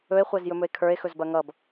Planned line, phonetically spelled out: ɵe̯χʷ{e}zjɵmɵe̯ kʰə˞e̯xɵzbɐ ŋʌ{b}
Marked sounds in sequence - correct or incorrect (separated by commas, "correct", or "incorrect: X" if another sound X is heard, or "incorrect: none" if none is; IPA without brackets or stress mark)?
incorrect: ɛ, correct